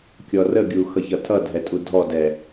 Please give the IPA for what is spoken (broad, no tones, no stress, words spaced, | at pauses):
kʲɔrəɡʲu xʌçʌtʰʌdʱɛ tʼudʱɔdɛ